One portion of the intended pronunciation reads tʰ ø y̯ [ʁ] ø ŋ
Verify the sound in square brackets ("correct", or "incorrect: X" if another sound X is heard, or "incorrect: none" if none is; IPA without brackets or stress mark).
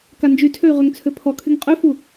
correct